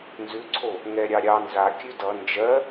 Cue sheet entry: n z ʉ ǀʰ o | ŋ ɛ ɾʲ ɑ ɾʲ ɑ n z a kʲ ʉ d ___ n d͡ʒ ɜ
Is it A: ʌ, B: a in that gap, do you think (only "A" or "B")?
A